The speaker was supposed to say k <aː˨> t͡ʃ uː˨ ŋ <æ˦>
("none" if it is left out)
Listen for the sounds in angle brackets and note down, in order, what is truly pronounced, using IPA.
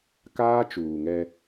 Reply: aː˦, ɛ˦

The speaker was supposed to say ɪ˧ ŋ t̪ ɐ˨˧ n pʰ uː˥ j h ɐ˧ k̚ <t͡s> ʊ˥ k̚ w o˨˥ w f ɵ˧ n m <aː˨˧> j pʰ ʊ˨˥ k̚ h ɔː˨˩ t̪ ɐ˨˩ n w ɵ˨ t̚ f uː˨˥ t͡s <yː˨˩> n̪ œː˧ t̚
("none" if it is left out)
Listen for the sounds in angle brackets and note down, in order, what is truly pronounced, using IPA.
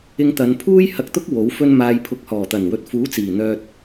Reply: t̪, aː˨, iː˨˩

